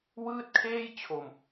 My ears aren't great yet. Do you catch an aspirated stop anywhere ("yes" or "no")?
yes